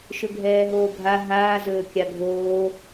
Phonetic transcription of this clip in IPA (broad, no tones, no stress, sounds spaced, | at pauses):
ʃ ɵ ɡʱ ɛː ɦ oː ɡʱ a ɦ aː z ɵː kʲ a ɡʱ oː